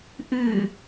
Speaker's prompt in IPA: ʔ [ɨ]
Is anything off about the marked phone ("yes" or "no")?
no